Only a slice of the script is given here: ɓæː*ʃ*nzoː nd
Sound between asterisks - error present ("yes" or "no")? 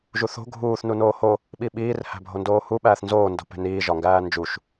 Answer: yes